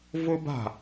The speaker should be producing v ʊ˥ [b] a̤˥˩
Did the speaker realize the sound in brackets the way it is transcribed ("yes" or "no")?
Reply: yes